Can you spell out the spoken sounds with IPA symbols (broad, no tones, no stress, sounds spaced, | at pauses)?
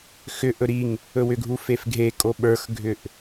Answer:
x ʏ ʔ ɵ ɾ i ŋ | ɵ w ʏ ɡʱ u f e f ɡʱ e kʼ o ɓ ə˞ x ɡʱ ʏ ʔ